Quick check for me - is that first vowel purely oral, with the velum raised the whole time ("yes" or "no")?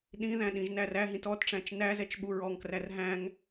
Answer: no